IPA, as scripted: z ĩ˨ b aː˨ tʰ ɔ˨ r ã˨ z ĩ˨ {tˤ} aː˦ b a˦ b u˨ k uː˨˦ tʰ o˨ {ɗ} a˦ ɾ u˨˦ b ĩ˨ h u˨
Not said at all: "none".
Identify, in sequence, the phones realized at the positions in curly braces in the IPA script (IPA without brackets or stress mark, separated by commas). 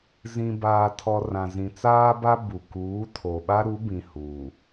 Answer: t͡s, ɓ